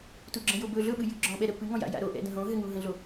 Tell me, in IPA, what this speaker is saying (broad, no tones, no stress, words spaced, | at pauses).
tuɡ͡ǁə̃ jobɵ ɮɵɓɨjɨ ɡ͡ǁɔ̃ ɓɛɾə pɨŋɔ̃ja̰ ja̰ɾo ʔɛ̰də̃ɦõ ɦɘŋuɦə̃ɮo